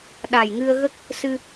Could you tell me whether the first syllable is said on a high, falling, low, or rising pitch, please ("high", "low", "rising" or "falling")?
low